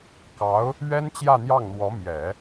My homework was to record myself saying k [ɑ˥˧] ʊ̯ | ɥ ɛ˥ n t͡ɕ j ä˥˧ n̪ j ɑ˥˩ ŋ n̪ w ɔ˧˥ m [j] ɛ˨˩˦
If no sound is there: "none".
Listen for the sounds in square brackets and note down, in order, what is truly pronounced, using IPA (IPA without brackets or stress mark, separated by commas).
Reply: ɑ˧˥, j